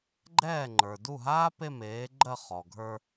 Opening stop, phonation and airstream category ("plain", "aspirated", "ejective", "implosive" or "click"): click